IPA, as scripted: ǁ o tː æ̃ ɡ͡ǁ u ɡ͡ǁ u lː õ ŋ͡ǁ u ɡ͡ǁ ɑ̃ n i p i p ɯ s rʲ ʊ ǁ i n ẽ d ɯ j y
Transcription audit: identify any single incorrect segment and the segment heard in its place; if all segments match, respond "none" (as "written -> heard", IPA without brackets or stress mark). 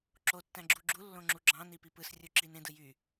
ʊ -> u